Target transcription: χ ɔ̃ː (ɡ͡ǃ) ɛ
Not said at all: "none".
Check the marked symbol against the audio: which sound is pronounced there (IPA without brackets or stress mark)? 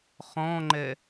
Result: ŋ͡ǃ